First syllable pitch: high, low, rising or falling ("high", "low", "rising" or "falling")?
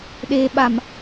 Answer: low